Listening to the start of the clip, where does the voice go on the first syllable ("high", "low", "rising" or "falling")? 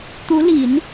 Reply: rising